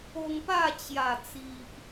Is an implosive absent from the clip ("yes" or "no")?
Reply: yes